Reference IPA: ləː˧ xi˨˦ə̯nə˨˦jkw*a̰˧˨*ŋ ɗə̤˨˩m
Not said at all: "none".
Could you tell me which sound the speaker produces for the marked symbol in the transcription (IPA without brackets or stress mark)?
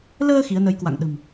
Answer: a̰˧˨